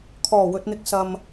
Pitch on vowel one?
low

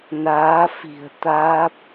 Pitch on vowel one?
rising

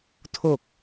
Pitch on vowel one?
low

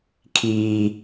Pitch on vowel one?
high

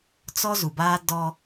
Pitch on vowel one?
high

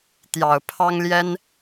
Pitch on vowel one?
low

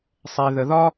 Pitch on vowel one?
low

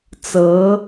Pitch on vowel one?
rising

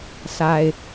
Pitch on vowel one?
low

